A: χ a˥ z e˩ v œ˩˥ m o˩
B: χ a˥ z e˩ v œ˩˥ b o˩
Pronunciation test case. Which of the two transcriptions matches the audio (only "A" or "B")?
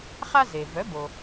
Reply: B